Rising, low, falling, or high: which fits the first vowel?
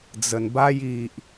low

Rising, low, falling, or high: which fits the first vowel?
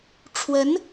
rising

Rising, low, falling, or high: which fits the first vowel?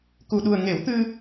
low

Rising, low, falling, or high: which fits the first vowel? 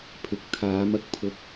rising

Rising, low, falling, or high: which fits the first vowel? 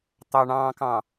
low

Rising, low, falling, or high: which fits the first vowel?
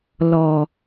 low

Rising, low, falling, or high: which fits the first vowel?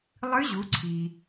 rising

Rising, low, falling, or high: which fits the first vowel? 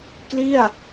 falling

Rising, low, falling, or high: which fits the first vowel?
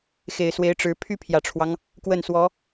low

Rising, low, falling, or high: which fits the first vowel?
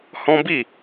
high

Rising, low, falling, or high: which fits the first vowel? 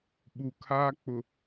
low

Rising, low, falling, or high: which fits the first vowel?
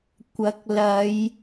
rising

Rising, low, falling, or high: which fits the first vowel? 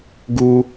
high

